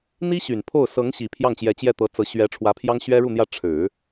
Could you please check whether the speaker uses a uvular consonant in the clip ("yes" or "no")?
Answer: no